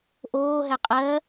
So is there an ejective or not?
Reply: yes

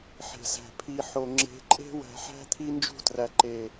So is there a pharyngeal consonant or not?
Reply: yes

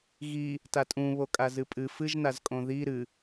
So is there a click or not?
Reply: no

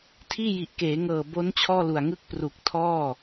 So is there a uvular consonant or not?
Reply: no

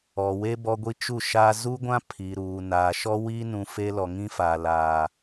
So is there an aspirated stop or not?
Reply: yes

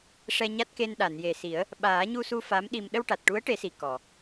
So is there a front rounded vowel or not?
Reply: no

